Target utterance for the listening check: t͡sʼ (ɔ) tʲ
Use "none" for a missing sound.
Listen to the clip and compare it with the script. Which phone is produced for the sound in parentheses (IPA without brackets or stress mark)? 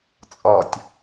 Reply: ɔ